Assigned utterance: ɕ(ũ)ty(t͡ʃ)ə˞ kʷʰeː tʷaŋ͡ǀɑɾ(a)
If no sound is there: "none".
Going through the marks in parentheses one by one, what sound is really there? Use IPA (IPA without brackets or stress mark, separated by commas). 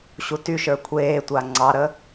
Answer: u, ʃ, ə